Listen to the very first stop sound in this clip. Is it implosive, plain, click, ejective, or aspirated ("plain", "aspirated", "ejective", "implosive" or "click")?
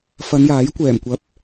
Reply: plain